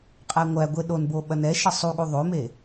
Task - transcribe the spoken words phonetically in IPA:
qʼæŋʷæɡʷe ɗonbo ɓɐnɛʃʌ sˤuɠu ðˤome

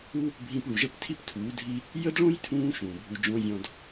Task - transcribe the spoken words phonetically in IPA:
u˦ | bʱĩ˧pɭu˨ʒə˦˨p tʰi˦ptʰuː˨˦dʱi˦ | jə˦dɭõ˦jtʰũː˧ ʃũː˨bʱu˧d͡ʒõ˦zʲɔ̃˦d

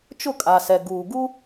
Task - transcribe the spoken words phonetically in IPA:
t͡ʃʊ˦˨kʼa˨sɛ˨ ɡuː˨ ɡu˦

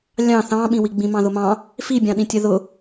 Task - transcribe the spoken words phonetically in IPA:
lʲɑ̃ θɑ̃ɓĩwi ɡ͡bĩmɑ̃ðʊmɑ̃ | fibʲɑ̃ɗĩtʲɜ ðʊ

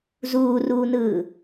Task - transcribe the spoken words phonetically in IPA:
zuːruːnɯː

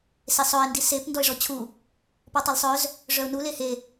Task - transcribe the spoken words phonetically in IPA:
sesˤœɪ̯ ndisep ndɔɪ̯ʐɔt͡ɕʰu | pɔtˤɛlsˤœz | ʐœʊ̯nu lehe

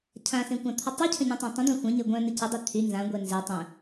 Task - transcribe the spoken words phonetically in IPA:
cʰãsẽ kʷãt̪ʰətˤycʰə̃ ɲœ̃tˤãtˤə̃d̪ã xʷœ̃ɲe ɡʷœ̃ nəcədˤy t̪ʰy nzãɡʷɛ nze tˤə̃

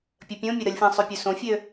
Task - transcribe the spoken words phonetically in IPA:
pʲəpʲõmʲɵ ɾəlʲfẽsˤøpʲø sõfʲø

